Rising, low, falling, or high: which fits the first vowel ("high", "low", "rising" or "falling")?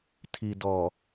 low